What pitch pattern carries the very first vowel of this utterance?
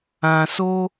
high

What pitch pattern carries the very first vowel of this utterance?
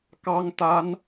high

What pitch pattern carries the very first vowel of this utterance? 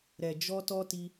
low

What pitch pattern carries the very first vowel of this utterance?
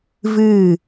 falling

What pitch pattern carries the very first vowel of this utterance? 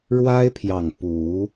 high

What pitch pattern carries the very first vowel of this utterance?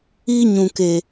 high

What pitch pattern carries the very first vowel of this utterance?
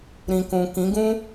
low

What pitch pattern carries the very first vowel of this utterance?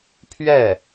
falling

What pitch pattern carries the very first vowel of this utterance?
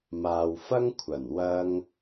low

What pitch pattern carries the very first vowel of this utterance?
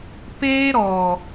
high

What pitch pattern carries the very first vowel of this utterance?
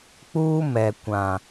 high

